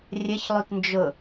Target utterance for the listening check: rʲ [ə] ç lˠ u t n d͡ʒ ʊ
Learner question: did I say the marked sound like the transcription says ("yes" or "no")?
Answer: yes